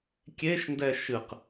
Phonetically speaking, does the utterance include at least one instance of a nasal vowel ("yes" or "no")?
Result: no